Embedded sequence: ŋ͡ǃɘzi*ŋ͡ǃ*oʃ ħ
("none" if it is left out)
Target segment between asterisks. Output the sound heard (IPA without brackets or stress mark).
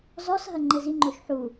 ŋ͡ǃ